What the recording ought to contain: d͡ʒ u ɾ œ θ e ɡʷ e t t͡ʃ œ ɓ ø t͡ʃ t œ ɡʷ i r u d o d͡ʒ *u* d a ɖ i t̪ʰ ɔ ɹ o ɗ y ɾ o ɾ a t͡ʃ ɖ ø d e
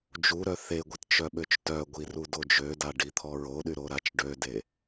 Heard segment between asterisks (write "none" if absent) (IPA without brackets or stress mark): ø